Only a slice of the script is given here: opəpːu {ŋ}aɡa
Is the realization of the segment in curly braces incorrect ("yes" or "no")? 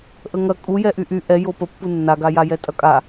yes